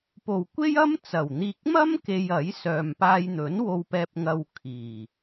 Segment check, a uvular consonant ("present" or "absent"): absent